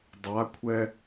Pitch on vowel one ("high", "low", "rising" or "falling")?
rising